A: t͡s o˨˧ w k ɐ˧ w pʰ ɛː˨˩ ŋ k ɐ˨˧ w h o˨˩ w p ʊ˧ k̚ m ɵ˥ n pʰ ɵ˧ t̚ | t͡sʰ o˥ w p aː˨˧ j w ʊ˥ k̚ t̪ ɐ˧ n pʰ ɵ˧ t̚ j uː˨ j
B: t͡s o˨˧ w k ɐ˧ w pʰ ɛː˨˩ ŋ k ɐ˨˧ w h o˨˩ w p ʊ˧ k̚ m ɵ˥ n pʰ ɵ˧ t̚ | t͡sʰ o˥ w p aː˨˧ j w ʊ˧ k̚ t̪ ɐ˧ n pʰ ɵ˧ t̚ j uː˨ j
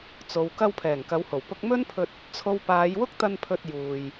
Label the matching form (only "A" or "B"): A